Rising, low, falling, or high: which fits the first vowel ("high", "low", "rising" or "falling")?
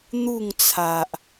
falling